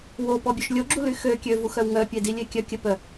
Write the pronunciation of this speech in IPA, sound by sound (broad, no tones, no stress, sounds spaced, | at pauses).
w o p ɔ bʲ ø ʃ lʲ o ɡ͡ǁ u l y x ø kʲ ø v u x œ w ŋ œ pʲ e d i lʲ e kʲ œ kʲ ə p œ